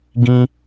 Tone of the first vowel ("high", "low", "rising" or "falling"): high